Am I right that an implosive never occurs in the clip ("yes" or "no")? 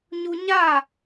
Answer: yes